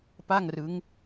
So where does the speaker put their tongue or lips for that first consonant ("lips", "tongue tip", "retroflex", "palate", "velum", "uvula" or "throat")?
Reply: lips